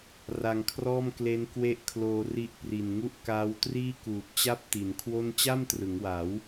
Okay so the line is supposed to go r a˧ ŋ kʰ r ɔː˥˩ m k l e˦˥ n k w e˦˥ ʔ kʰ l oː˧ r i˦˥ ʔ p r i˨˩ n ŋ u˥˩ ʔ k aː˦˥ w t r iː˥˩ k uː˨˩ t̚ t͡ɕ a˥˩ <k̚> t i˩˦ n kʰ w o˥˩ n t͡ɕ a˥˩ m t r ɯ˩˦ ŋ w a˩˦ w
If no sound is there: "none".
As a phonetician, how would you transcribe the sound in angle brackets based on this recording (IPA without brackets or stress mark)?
p̚